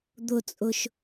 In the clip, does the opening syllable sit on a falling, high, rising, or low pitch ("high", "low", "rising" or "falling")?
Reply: high